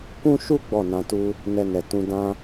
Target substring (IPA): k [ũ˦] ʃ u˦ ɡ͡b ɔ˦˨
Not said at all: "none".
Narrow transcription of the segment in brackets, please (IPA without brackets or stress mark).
ũ˦